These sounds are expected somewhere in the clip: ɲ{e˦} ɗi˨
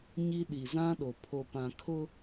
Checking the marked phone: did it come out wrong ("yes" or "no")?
yes